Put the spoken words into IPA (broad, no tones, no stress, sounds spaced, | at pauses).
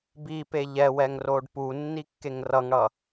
b i p e ʎ ɛ w ɛ ŋ r o ɖ p u nː i kː e ŋ r ʌ ŋ ɽ ʌ